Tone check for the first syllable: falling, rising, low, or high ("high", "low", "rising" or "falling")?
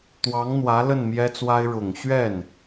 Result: rising